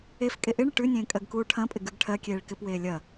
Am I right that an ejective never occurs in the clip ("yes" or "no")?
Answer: no